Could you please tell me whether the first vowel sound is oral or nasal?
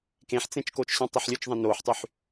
nasal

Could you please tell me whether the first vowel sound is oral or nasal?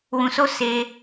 nasal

